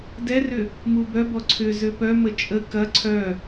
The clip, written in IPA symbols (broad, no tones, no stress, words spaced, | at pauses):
dɛrʏ | mubœbɔ ǀʰʏzø pœmə t͡ʃʼə kɐ ǀʰœ